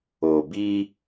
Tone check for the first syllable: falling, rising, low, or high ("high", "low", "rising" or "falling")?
low